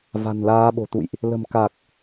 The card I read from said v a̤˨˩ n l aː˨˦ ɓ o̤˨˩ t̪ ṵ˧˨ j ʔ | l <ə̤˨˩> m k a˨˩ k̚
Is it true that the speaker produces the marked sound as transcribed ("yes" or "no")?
yes